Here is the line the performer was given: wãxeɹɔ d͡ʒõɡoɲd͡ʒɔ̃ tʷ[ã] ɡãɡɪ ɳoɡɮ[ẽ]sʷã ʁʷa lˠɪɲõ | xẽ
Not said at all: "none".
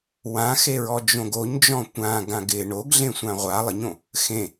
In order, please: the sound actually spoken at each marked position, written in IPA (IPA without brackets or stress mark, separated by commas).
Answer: ã, ẽ